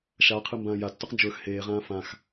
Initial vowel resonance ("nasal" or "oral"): oral